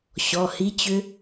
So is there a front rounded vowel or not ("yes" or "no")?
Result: yes